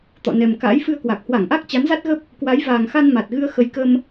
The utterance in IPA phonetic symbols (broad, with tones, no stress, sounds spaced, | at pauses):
t̪ ɔ̰˧˨ n ɛ˨˩ m k a̰ː˧˥ j f ɨ˧ ə̯ k w a˨˩ k̚ h w a˧˩ ŋ ʔ a˦˥ k̚ t͡ɕ a˨˦ n z a˦˥ t̚ ɣ ə˦˥ p̚ | k w a˨˦ j v aː˨˩ ŋ x a˧ n m a˨˩ t̚ ɣ ɨ˧ ə̯ x ə˨˦ j k ə˧ m